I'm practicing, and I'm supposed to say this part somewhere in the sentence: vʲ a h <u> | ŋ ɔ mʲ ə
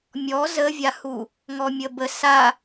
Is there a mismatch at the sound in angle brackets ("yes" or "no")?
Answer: no